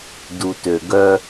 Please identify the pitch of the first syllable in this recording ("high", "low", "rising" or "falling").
low